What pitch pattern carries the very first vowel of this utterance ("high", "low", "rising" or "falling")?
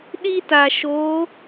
high